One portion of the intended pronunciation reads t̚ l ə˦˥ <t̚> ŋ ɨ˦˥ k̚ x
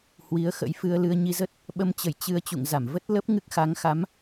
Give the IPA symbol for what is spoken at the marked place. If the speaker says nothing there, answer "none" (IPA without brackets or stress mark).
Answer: p̚